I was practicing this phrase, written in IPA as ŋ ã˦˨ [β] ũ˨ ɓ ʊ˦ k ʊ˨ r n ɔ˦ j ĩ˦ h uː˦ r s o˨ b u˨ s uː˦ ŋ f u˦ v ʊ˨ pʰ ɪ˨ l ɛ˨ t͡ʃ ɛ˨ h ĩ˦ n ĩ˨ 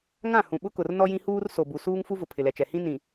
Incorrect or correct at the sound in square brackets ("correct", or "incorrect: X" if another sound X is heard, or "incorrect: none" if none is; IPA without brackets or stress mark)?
incorrect: h